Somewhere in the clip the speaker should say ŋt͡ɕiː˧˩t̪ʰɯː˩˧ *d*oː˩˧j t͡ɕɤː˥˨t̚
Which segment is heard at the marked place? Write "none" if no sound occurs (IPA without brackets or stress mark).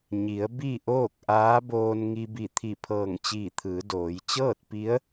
d